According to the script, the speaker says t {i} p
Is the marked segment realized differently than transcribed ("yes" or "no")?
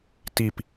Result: no